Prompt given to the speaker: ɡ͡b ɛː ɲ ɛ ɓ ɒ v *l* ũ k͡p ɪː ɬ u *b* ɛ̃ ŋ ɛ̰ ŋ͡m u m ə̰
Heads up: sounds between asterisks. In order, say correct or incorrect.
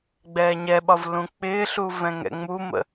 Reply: correct, incorrect: v

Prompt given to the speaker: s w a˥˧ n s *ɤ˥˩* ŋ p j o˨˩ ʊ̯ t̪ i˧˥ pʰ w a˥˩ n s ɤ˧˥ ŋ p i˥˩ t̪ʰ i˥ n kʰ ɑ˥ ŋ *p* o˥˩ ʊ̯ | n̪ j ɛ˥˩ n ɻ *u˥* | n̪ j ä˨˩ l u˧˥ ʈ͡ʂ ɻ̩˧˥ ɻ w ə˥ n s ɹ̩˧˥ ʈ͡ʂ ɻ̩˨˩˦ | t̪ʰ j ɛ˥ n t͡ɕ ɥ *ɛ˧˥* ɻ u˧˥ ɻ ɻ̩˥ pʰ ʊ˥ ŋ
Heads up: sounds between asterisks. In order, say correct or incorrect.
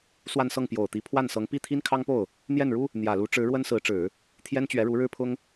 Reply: correct, correct, correct, correct

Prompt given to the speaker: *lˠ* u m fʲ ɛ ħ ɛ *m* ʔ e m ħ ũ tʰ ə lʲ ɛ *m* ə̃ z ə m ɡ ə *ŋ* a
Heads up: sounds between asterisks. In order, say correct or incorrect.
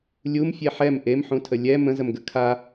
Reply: incorrect: lʲ, correct, correct, incorrect: kʰ

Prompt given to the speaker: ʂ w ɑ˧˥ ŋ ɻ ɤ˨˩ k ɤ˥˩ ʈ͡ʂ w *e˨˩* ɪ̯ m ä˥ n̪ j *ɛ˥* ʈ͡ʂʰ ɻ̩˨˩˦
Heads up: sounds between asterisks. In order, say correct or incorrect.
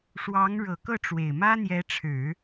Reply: correct, incorrect: ɛ˧˥

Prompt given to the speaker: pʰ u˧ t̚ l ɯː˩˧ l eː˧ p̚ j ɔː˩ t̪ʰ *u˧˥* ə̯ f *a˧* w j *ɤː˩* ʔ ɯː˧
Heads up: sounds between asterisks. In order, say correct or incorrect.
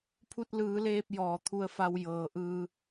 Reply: incorrect: u˧, correct, correct

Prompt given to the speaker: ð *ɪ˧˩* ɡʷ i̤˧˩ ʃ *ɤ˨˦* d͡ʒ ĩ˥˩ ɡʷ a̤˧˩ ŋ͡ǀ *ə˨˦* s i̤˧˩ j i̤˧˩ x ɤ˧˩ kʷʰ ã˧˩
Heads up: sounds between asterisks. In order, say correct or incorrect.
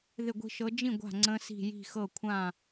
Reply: correct, correct, incorrect: ə̃˨˦

